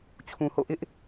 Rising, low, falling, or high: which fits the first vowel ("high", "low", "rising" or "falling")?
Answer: low